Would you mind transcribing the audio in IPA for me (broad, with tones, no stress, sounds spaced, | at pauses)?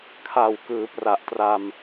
kʰ a˨˩ w k ɯː˩˦ p r a˨˩ ʔ t r a˧ m